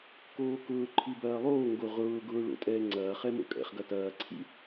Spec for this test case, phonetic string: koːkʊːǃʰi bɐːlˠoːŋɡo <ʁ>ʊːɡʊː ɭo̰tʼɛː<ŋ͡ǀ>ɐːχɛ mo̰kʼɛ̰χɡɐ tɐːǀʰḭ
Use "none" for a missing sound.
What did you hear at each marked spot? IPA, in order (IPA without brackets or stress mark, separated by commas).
ʁ, ŋ͡ǀ